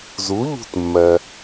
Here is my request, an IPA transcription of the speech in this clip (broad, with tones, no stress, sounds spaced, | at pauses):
z u˩˥ ʎ ṳ˧˩ t mː ɜ˩